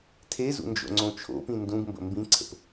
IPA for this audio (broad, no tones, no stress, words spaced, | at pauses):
tʰezṵ nd͡ʒo̰ŋ͡ǀõt͡ʃʰo̰pĩ ndũɡ mbə̰mbĩǀʰə̰p